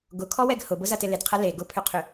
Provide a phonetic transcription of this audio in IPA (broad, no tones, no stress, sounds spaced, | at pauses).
ɡ ʊ kʰ ɔ w ɛ ɡ h ʊ b ʊ z ɐ t ɪ l ɪ d qʰ ɐ l e ɡ ʊ pʰ ʏ qʰ ʏ